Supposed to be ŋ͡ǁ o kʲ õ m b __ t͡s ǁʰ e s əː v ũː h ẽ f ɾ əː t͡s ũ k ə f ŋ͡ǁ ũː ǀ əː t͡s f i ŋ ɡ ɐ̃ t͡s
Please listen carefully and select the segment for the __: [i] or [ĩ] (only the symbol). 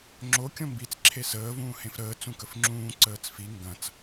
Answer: i